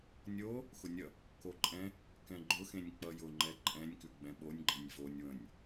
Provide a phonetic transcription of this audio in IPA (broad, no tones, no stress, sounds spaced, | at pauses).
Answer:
nʲ o | x ʊ nʲ ʌ | k o ǃʼ ɛ̃ | k ɛ̃ ɡ͡ǃ ʊ x ẽ nʲ k͡p ʌ j ʊ ŋ͡ǃ ɛ ǃʼ ɛ̃ nʲ k ʉ ɡ͡b ɛ̃ ɓ o nʲ ɡ͡ǃ ɛ̃ nʲ v o nʲ w ə̃ nʲ